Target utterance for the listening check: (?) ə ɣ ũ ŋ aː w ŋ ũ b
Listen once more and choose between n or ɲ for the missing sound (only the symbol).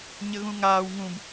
ɲ